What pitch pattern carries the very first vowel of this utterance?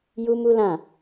high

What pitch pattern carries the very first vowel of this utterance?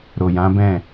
low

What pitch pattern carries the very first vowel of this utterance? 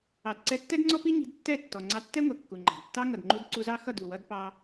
low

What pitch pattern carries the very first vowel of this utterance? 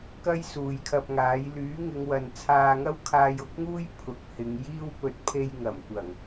high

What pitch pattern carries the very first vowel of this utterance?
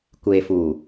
low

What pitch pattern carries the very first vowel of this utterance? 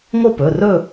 falling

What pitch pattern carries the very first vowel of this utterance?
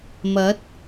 rising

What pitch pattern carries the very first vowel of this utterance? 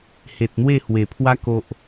low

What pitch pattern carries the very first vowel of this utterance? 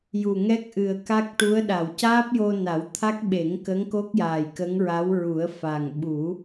low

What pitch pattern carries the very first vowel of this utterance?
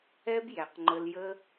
high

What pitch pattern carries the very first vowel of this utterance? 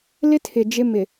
high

